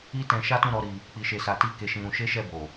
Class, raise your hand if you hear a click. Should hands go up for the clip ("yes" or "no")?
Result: no